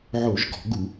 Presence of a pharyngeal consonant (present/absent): present